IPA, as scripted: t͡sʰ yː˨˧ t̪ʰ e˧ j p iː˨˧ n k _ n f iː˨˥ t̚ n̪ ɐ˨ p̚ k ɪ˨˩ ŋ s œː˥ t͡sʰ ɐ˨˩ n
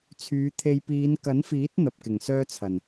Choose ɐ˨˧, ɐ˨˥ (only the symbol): ɐ˨˥